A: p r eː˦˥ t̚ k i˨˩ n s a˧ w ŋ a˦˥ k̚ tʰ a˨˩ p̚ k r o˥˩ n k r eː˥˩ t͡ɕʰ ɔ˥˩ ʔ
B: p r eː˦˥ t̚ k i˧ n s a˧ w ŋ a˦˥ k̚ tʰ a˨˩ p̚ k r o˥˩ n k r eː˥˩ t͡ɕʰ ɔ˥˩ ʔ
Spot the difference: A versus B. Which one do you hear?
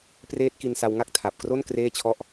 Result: B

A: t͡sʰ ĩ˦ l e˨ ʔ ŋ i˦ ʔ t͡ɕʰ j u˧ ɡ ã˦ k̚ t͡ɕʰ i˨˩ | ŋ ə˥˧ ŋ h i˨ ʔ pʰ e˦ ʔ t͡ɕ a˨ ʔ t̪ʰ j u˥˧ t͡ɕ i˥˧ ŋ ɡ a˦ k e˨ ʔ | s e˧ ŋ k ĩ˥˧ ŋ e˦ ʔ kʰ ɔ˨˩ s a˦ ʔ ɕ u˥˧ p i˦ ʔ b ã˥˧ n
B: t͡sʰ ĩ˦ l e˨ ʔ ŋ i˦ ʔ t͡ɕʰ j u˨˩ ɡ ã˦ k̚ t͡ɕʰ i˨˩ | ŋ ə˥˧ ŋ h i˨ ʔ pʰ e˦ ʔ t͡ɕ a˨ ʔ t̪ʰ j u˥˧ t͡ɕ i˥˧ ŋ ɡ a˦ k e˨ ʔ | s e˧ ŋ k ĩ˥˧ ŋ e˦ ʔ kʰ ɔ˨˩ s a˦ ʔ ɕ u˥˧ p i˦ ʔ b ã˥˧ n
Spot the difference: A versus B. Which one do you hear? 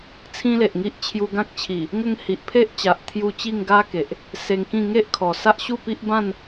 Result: A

